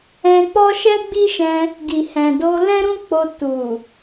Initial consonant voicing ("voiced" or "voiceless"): voiceless